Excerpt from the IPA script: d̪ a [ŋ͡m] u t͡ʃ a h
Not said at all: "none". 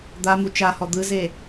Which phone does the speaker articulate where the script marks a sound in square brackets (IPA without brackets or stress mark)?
m